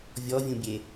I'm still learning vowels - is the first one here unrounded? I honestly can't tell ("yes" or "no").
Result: no